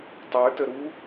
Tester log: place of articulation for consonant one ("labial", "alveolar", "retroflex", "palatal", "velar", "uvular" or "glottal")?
alveolar